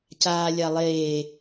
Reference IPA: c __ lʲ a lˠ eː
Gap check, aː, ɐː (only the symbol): aː